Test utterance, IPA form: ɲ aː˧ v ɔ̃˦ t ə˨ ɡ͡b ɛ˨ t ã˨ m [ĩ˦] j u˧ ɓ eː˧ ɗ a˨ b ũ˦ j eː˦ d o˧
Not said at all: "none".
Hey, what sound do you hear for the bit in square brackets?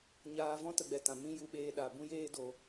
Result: ĩ˦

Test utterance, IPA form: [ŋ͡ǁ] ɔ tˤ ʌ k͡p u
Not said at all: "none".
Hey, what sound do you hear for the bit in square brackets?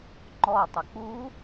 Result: ŋ͡ǃ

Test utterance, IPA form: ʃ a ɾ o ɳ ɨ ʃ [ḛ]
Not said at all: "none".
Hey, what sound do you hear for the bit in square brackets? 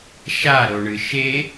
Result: e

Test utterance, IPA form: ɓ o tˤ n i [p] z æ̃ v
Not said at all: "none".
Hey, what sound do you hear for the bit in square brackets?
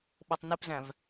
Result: p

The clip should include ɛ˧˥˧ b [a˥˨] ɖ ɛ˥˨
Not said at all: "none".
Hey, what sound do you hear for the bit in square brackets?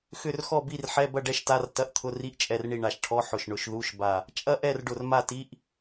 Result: ɐ˥˨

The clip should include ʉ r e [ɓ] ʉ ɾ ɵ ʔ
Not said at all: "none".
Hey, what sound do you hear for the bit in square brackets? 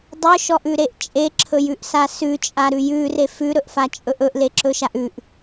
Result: f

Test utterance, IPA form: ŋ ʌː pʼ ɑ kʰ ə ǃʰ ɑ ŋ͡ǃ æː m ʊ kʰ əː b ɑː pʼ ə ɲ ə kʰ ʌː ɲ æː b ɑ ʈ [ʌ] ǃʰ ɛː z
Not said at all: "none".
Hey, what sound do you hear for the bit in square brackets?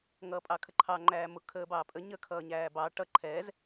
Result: ʌ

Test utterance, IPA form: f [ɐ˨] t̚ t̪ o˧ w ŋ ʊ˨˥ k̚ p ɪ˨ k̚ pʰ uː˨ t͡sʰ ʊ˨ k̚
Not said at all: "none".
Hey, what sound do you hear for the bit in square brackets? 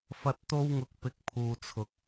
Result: ɐ˧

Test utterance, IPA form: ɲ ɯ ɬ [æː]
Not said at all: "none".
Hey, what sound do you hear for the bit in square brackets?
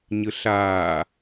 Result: aː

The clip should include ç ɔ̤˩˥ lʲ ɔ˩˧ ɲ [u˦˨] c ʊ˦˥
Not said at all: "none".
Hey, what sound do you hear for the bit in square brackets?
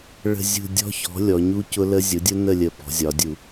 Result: u˦˥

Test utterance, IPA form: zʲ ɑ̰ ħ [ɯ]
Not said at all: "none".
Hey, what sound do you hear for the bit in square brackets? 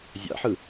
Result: ɯ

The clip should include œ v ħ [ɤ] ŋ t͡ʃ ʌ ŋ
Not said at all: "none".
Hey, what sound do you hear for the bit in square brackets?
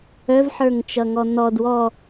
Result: ə˞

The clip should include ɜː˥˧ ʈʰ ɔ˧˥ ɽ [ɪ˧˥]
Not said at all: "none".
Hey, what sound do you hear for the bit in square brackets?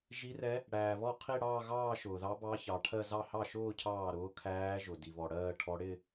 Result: ɪ˥˧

